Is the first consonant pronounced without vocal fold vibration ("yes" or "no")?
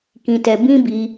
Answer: yes